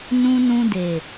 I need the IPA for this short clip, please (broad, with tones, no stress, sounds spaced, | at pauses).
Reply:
n ũ˧ n ũ˧ d e˨